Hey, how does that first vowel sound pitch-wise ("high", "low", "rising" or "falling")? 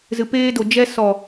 low